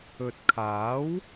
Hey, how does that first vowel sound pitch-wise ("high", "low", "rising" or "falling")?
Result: low